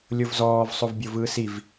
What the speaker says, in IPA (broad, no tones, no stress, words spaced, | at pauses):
lʲovzɔːv sˤovbʲovɯːsiv